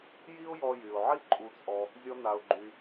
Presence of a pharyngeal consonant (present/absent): present